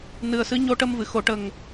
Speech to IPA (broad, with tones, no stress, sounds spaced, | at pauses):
n ɨ˨˩ ə̯ s ɨ˧˥ ɲ o˧ ʈ ə˧ m v ɨ˨˩˨ x o˨˩˨ ʈ ə˨˩ ŋ